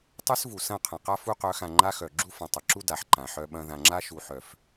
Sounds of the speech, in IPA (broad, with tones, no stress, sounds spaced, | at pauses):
tˤ œ˦ s v u˨ s ɐ̃˦˨ qʰ ɐ̃˨ q a˦ f u˦ q œ˨˦ x ã˨ ŋ͡ǃ a˦ x œ˨ ɡ͡ǁ u˦ f ɐ̃˨ tˤ ɐ˨ ǁ u˦ d a˨ ħ ǃ ã˨ ħ œ˦ ɓ ɐ̃˦ ð ã˨ ŋ͡ǁ a˦ ʃ u˨ ħ œ˨ f